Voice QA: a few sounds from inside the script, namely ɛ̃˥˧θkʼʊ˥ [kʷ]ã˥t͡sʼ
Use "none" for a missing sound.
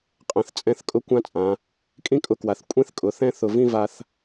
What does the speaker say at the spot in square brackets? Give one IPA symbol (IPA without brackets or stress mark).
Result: kʷ